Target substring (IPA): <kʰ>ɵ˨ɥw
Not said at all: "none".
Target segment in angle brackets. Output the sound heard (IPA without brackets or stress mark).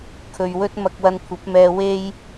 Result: kʰ